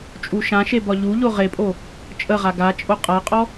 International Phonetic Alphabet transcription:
t͡ʃʼ u ʃ ã ʃ e b ɒ ʎ u ʎ o ʁ e pʼ o | t͡ʃʼ ə ʁ a ɡ a t͡ʃʼ o qʼ a qʼ ɔ

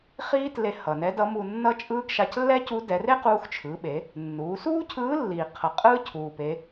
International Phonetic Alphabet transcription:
χ iː˥ t l e˧ h ʌ˩ n ɛ˧˥ d ʌ˧˥ m u˧ nː ʌ˥ t͡ʃʼ ɯː˥ ɡ ʃ a˧ c lː ɛ˥ c u˧˥ d ɛ˩˧ r e˥ q uː˧ x t͡ʃʰ ɯː˩˧ ɓ e˩˧ | nː uː˩˧ s uː˥ cʰ ɯː˧˥ lː iː˩ qʰ ʌ˩ qʼ ɯː˥ cʰ uː˩ p e˩˧

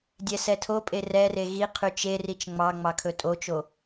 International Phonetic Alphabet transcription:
dʲ ɛ s ɛ tʰ o pʼ e r ɛ r e ɣ i qʰ y t͡ʃ e r i t͡ʃ ŋ͡m ɑ ŋ͡m ɑ kʰ ɵ tʼ o t͡ʃ o

